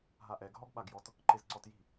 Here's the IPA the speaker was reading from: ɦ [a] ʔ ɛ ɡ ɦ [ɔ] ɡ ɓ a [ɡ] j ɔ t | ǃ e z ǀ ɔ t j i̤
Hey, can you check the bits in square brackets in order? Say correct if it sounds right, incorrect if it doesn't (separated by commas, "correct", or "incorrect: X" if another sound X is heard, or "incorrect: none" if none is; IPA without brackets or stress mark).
correct, correct, correct